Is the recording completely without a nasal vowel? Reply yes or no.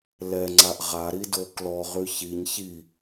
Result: yes